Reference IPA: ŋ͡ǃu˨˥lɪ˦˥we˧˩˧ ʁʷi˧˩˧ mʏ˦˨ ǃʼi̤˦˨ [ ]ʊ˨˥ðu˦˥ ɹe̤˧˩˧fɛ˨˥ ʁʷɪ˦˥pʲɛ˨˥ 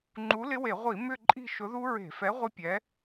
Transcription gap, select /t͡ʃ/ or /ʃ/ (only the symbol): ʃ